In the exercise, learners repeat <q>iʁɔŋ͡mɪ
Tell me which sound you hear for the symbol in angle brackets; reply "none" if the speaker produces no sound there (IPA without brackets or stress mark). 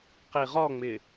q